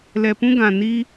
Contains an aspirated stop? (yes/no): no